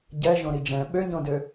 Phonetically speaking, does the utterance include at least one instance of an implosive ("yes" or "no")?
yes